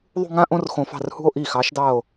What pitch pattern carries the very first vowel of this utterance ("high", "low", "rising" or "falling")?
falling